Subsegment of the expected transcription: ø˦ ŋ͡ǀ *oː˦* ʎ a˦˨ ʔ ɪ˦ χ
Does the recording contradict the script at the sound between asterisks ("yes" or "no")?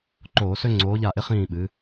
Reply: yes